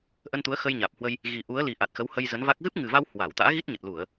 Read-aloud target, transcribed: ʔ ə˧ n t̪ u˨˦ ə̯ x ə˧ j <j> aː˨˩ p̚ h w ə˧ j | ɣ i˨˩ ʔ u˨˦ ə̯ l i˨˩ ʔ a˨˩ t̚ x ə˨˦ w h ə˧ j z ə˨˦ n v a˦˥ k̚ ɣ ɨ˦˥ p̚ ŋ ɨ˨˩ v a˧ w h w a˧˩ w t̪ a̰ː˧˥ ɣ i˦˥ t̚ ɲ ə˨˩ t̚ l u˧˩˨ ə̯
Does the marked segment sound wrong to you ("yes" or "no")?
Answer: yes